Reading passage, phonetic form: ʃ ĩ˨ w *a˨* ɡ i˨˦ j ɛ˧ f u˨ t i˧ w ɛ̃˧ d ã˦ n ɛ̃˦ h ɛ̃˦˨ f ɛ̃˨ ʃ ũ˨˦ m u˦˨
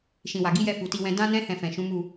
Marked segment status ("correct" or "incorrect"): correct